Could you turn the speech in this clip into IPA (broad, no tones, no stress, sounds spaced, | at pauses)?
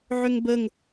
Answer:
ʕ ʏ ŋ b ə ŋ